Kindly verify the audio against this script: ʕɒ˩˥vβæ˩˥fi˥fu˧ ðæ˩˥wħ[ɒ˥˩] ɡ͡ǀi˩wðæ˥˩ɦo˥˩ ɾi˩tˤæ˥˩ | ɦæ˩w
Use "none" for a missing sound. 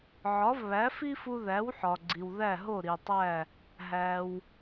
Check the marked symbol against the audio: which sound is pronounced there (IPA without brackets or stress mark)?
ɒ˩